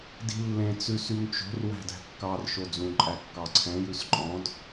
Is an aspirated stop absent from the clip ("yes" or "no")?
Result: no